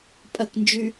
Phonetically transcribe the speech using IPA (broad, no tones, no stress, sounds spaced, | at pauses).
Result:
pʼ ɐ k n d͡ʒ y